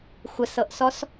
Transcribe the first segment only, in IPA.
xʷ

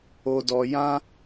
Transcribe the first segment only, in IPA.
o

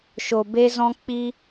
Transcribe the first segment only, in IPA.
ʃ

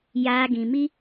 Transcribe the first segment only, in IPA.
j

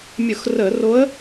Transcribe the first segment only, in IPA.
mʲ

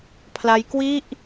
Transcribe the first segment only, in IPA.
pʰ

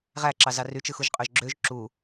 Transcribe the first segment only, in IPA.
ʁ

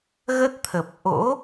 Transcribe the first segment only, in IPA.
ɣ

